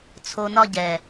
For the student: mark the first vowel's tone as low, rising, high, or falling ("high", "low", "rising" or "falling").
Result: low